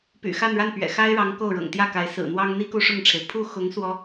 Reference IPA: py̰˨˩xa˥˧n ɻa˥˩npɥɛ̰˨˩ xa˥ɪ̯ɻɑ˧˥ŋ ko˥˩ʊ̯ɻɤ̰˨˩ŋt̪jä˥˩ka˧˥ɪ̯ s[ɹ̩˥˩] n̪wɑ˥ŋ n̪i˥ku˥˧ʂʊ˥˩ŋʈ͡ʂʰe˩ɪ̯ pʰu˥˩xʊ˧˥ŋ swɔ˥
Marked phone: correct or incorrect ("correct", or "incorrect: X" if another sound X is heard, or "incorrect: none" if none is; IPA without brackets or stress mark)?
incorrect: ɹ̩˨˩